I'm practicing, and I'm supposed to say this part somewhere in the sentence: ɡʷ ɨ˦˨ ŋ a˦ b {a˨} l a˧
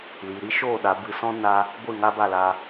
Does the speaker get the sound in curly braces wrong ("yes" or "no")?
yes